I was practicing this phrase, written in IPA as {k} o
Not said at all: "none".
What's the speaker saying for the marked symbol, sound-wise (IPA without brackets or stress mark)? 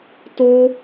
t